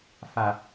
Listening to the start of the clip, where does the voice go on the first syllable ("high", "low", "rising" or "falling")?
low